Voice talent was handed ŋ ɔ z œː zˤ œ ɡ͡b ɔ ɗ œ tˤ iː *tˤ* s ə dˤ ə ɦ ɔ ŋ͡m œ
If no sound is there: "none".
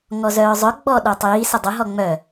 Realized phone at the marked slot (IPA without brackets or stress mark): none